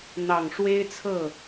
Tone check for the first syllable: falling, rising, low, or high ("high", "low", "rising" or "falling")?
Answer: low